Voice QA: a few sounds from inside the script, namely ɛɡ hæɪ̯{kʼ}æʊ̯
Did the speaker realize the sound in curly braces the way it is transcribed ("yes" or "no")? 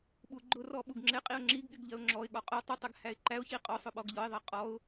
no